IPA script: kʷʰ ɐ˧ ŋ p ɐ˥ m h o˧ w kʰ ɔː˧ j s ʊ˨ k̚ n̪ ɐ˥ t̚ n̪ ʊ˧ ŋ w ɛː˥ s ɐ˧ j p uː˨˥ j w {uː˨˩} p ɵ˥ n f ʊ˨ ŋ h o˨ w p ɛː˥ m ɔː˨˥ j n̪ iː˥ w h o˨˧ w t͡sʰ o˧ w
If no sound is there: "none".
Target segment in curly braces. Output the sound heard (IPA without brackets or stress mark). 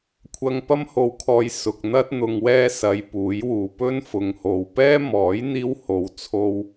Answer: uː˨